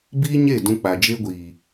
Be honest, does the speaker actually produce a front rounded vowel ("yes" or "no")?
no